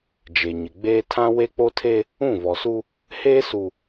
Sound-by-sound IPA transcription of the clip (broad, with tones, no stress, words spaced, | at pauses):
d͡ʒe˨ɲɪ˨ɡ͡beː˦ tʰã˦we˦k͡po˦tʰe˦ | ũ˦˨vɔ˨su˦ | heː˦su˨